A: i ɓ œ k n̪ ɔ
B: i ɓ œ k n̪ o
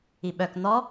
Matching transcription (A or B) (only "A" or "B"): A